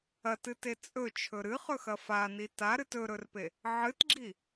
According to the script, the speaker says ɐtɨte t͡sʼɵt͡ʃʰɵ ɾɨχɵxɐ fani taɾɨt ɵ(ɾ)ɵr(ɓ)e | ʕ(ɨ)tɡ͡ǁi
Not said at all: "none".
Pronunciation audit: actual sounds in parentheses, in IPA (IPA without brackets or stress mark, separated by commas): ɾ, p, ɨ